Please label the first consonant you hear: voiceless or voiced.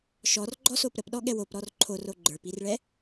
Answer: voiceless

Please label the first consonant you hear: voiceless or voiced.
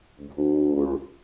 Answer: voiced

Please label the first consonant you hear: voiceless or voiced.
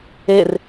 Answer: voiced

